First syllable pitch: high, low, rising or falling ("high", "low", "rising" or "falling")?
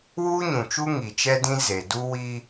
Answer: high